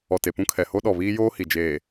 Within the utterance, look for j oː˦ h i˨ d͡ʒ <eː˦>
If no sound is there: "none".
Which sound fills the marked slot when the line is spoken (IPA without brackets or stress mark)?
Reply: eː˨